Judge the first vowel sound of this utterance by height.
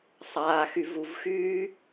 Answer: low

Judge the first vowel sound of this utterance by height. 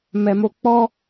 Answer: mid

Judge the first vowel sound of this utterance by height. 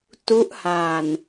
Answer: high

